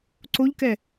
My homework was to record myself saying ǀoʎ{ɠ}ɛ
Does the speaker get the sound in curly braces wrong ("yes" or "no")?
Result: yes